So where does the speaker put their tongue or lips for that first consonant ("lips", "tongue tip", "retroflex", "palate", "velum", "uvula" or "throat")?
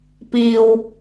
lips